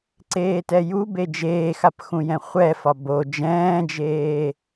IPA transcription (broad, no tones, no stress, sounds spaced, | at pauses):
ǀ eː t ɛ j u b e d͡ʒ eː x a p x ũ j ɛ̃ χʷ ɛ f ɒ b o d͡ʒ ɛ̃ː d͡ʒ eː